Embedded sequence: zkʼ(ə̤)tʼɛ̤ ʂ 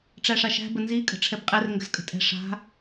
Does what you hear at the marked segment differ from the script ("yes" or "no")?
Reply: no